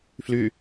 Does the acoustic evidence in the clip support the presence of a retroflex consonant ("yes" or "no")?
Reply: no